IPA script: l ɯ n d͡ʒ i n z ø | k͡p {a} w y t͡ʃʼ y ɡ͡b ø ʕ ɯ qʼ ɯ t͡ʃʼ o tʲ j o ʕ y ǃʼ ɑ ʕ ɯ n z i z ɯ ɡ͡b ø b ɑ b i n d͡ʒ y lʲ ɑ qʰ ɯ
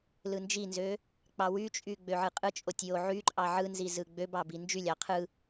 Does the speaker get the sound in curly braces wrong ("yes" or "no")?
yes